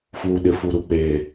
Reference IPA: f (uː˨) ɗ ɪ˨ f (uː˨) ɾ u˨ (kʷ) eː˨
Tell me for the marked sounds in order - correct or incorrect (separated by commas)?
correct, incorrect, incorrect